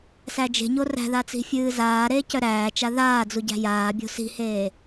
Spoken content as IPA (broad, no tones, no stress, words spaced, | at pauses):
sæd͡ʒe̤ɲo ræ̤ða t͡si̤fʲɨːzaːɾeː cœɾæːt͡ʃa ðaː d͡zuɟæ̤jaːbʲo̤ si̤heː